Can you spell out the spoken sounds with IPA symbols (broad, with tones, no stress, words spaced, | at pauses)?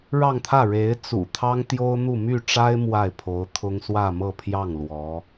ɻɑ˥˧ŋt̪ʰä˥˩ ɻe˧˥ɪ̯ t͡sṵ˨˩t̪ʰɑ˥ŋt̪jo˥ʊ̯n̪u˥˧ my˥˩ʈ͡ʂa˥ɪ̯ mwa˥˩ɪ̯pʰo˧˥ʊ̯ t̪ʰʊ˥ŋ swä˥˧mɤ˥˧pʰjɑ˥˩ŋ lwɔ˧˥